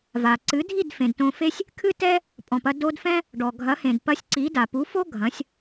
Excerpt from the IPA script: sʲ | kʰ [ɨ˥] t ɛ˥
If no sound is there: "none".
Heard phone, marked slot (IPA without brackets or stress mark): ɨ˥